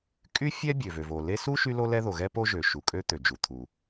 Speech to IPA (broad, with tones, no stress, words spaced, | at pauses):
kʼy˥ fʲɛ˥bʲø˩ vø˩vo˩le˥ su˥ ʃy˥lo˥lɛ˥ ðo˩ɣɛ˥po˥ ʒø˩ʃu˩kʼø˥ t̪ø˩d͡ʒu˩ t̪ʰu˩